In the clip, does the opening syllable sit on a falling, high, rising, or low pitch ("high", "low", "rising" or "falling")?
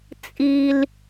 high